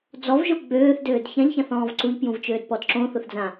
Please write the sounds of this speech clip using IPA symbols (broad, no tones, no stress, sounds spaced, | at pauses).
d͡z ɔ v ʒ o ɡ͡b øː θ d øː d ç ã ʎ ç ã θ ɔ̃ː v ǀ u ʎ p j ũ v t͡ʃ øː d p ɔ d ǁ õ θ ʊ θ d͡z ã